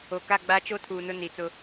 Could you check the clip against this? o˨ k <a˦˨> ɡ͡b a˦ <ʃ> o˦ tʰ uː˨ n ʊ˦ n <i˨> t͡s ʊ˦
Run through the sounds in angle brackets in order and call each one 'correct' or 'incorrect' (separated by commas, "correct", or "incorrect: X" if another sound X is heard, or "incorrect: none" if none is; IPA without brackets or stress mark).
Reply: correct, incorrect: t͡ʃ, correct